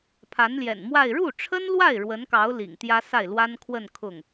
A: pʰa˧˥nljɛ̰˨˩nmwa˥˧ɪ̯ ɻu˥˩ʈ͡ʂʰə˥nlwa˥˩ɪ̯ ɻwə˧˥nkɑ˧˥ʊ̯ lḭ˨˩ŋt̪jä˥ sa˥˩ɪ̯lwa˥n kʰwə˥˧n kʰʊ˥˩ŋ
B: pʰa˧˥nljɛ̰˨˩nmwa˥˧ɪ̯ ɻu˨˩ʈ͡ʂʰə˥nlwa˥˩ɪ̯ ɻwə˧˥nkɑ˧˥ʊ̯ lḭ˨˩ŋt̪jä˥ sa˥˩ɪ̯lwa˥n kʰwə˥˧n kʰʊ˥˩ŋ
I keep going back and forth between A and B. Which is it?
A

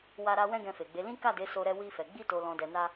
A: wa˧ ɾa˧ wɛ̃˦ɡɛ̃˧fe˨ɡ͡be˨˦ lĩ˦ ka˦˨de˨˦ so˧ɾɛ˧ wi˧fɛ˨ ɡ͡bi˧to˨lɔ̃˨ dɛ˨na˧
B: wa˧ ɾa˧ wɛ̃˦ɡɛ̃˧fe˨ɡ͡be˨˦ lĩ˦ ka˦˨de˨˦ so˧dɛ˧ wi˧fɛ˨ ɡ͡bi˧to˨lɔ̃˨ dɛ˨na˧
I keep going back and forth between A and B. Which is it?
A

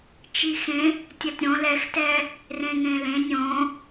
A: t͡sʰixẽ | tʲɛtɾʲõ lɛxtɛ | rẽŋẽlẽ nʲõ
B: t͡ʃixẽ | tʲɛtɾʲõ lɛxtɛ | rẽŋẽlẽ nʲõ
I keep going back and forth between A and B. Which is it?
B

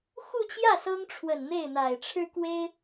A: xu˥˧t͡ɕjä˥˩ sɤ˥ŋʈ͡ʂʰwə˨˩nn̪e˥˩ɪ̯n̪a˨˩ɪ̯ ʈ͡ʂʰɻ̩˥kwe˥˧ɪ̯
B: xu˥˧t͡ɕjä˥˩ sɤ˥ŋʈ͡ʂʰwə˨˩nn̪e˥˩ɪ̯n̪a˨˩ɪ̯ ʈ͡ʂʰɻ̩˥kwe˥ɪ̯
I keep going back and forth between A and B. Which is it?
B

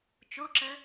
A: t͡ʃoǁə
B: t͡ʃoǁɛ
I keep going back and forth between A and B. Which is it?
A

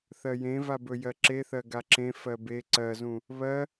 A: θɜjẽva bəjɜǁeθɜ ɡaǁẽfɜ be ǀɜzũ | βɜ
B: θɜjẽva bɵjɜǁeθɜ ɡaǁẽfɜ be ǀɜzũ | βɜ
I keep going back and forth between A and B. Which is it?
B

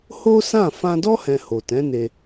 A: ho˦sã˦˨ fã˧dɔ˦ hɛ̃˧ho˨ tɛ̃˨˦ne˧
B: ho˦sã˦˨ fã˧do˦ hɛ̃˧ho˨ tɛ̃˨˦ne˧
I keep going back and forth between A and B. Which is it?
A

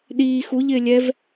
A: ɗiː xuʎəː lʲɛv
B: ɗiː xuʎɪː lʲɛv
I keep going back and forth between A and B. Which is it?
B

